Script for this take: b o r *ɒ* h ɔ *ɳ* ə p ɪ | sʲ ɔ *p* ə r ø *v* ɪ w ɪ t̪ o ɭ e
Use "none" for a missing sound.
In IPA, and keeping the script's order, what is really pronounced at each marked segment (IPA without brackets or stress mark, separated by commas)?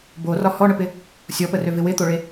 ɒ, ɳ, p, v